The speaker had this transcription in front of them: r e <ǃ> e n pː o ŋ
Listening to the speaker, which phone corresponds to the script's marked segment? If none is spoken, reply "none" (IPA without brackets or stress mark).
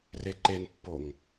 ǃ